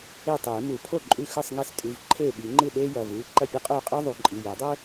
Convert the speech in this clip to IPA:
e˥˩tˤeː˨˩˦mu˨˩˦ pʰo˥˩ ǃʼʉ˥˩ xɨ˥˩sˤŋe˥˩stʼʉ˩˧˩v ǃʰeː˥˩ɓi˨˩˦ŋ͡ǃɨ˥˩ ɗeː˥jɐ˩˧˩vɨː˩˧˩ ǃɐ˥˩pʲɐ˥qʼoː˥˩qʼɨː˥ ðˤu˨˩˦ǃʼi˩˧˩ je˨˩˦dˤɵ˥

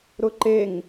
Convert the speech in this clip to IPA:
ɾʊǃeŋ

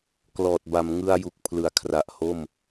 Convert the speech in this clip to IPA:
klɔː˨˩t̚ ba˩˦m ŋɯ˧a̯ ju˨˩k̚pʰlɯ˩˦a̯kʰra˨˩ʔ ho˥˩m

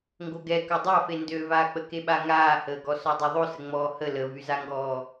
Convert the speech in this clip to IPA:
ŋɡoɡɛ kœdˤafe ndøvaːk͡pəke ɓaŋaːhəːɡɔ sɔdˤoðˤosə ŋ͡mɔːhə ləvyzaŋɡɔː

